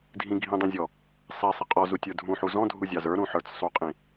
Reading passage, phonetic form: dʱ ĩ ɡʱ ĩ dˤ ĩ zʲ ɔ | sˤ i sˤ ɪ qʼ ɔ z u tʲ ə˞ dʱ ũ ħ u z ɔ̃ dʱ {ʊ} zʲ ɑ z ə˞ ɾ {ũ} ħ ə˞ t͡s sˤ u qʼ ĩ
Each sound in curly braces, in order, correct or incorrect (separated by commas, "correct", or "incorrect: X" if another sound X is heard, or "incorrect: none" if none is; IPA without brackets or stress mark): incorrect: u, correct